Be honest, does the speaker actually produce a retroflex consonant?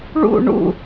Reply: yes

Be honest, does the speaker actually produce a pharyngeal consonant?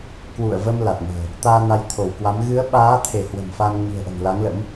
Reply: no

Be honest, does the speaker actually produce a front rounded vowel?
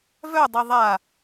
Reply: yes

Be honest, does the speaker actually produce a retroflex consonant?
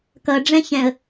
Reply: yes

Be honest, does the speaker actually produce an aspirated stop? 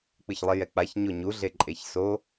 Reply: no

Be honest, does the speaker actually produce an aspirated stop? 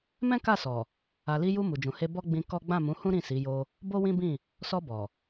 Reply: no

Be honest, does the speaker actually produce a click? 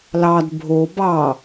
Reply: no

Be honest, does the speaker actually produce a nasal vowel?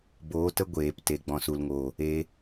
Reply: yes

